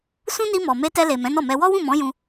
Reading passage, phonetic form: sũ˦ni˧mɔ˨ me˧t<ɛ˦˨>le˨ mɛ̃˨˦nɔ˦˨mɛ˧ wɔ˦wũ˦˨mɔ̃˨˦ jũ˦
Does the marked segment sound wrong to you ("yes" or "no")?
yes